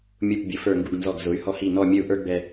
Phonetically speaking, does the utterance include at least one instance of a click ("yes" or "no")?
no